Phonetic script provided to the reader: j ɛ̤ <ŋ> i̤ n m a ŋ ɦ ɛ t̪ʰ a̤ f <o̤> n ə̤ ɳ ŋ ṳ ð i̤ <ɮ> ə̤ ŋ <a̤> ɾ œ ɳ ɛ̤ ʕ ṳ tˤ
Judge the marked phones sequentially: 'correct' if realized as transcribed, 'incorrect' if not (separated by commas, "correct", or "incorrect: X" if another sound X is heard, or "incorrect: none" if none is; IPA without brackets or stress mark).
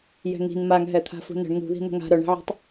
correct, incorrect: ṳ, incorrect: n̪, correct